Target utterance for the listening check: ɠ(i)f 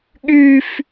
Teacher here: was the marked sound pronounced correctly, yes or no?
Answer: no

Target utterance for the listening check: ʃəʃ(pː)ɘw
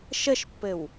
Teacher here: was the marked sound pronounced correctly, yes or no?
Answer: yes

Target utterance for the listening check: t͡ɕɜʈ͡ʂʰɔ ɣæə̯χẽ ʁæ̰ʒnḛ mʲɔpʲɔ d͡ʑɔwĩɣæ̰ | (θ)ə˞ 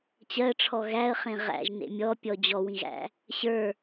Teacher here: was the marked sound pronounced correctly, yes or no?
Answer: no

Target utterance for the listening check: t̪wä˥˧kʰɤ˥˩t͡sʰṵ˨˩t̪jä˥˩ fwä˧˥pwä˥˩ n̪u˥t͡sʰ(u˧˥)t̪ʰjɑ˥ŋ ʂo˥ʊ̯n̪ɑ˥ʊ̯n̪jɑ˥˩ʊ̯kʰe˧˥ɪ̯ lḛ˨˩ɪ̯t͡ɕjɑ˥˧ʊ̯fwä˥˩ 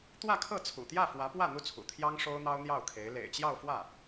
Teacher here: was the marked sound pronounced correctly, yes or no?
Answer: no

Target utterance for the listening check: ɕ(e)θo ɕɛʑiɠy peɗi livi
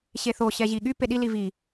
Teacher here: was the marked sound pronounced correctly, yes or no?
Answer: yes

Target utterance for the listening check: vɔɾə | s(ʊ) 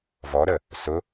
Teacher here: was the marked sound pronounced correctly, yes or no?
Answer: yes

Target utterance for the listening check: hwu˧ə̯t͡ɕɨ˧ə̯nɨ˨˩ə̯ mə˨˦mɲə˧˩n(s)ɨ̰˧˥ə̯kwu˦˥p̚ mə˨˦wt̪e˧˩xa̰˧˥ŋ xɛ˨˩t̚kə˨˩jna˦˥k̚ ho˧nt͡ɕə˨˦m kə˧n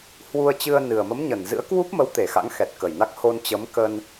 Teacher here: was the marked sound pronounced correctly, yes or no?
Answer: no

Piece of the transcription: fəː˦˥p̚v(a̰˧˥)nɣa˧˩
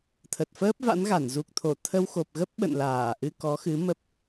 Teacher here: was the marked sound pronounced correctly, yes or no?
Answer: yes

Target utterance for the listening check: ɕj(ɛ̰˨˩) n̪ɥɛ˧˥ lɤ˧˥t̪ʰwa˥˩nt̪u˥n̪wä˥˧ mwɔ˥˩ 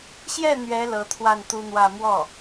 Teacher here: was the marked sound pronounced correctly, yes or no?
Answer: no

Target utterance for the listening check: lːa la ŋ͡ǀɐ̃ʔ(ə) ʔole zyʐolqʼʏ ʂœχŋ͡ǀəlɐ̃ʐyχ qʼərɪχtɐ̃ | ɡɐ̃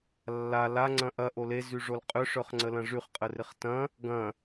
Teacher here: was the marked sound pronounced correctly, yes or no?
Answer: no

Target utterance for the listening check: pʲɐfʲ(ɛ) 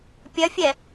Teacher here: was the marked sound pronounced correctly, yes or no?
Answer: yes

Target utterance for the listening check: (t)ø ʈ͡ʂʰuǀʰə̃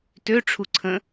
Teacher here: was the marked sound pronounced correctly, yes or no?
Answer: yes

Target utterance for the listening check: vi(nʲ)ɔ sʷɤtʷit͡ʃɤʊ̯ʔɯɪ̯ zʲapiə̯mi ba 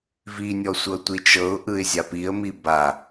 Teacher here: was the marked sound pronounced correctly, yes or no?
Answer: yes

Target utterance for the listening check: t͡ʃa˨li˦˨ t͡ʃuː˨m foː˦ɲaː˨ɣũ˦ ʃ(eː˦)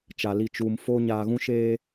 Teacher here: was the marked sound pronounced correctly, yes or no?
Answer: yes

